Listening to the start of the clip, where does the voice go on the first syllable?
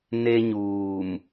high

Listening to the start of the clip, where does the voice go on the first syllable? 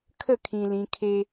falling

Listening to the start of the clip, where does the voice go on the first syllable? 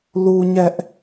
high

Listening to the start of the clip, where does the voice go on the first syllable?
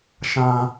low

